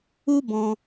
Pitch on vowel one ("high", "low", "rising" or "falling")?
high